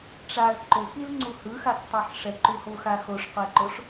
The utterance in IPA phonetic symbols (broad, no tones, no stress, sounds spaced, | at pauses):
ʈ͡ʂ a l ǃ o k i l ŋ͡ǀ u h ɯ x a k tˤ ɯ ħ ʂ ɛ ǃ u h o x a x o ʂ qʷ ɛ ǃ o ʂ